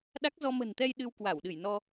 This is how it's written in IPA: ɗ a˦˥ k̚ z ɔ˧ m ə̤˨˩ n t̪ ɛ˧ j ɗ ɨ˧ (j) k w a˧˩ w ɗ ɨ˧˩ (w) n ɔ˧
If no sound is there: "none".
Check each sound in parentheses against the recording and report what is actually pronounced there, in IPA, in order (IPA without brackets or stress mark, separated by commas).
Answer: w, j